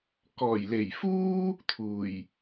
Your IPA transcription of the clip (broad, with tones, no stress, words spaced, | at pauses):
kɔː˨˩jle˨˩jfuː˥ | t̪ʰuː˨˩j